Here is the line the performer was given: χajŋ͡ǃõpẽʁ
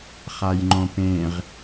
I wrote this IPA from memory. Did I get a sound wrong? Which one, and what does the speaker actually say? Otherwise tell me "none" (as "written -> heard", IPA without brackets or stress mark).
none